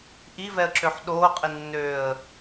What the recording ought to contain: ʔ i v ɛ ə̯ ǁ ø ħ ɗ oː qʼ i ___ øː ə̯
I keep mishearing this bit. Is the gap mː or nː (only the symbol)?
nː